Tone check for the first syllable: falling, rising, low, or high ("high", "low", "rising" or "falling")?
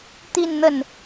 falling